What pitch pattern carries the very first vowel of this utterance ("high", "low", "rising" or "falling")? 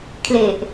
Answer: low